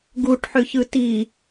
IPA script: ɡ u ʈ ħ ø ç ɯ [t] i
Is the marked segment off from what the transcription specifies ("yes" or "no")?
no